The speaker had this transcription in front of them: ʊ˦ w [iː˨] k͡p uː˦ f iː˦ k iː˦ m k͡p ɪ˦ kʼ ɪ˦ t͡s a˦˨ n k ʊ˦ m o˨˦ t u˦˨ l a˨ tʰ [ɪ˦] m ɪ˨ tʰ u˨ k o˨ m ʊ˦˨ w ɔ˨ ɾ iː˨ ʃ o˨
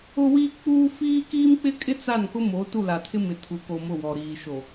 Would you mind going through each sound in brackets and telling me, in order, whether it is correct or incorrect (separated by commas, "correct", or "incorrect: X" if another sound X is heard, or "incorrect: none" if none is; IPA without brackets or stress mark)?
incorrect: iː˦, correct